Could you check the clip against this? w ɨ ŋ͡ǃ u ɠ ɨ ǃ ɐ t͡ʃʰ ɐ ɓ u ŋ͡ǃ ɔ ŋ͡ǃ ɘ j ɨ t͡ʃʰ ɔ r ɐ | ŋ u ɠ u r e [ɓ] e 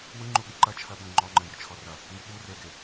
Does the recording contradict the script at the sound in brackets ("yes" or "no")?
yes